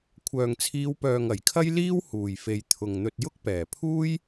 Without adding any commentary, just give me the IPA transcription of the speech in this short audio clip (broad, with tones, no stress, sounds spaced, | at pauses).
kʷʰ œː˨ ŋ t͡sʰ iː˨˧ w p œː˨ ŋ ɐ˨˩ j kʰ ɐ˥ j l iː˥ w h uː˨˩ j f e˨ j t̪ʰ ʊ˨ ŋ n̪ ɵ˧ t̚ j ʊ˥ k̚ p ɛː˨˩ pʰ uː˥ j